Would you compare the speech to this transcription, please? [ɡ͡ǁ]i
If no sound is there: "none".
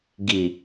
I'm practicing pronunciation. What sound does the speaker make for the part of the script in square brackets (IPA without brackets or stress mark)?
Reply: ɡ